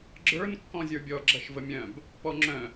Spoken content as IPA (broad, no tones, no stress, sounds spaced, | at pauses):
ɡ͡ǁ ə˞ n kː ɔ̃ zʲ ə˞ bʲ ɔ ɡ͡ǁ ɐ ʃ v ə mʲ œ̃ b | p ɔ ŋ͡ǁ œ̃